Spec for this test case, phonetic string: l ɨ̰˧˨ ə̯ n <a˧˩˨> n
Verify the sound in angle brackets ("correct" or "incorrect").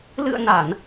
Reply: correct